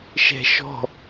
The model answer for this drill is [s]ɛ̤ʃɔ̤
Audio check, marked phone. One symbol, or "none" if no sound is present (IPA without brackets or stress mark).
ʃ